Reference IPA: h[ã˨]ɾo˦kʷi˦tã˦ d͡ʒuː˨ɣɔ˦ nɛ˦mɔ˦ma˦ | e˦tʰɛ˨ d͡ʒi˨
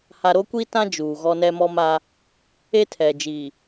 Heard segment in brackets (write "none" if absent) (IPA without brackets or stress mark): a˨